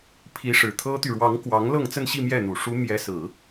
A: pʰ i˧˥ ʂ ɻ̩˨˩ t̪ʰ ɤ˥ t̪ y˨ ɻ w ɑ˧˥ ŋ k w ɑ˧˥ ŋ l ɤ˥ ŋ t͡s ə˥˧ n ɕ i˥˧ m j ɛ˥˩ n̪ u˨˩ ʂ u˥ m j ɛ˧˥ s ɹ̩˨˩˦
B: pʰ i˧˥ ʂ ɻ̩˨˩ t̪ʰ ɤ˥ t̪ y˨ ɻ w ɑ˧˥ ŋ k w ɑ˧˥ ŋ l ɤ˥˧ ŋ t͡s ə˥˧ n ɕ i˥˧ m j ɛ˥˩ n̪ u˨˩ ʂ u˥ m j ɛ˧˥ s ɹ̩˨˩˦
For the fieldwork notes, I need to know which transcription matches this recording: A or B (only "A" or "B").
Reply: B